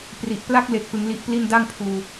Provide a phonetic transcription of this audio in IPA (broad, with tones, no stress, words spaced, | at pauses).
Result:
pri˨˩ʔpla˥˩k̚le˨˩k̚ pɯ˧ŋli˦˥ʔpli˥˩n da˥˩ŋpʰuː˧